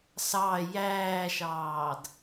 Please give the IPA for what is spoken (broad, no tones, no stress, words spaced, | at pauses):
sɑ jæːʃɑːd